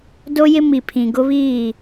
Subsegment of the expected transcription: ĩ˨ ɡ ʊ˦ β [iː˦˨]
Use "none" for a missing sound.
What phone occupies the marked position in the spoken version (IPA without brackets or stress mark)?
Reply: iː˦˨